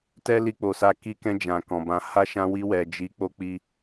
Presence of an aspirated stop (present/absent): absent